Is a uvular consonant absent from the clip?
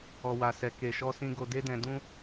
yes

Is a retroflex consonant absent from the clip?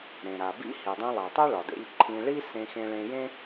no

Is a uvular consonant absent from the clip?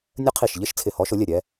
no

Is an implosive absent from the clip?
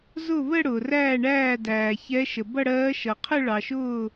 yes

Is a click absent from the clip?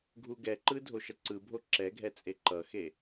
no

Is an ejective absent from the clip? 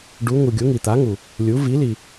yes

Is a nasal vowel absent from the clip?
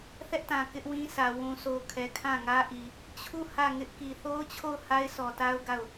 no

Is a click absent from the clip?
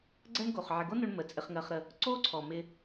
no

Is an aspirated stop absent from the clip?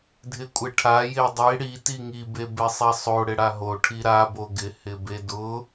no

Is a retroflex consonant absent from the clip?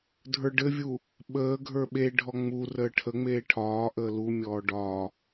no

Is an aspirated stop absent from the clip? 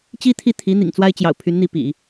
no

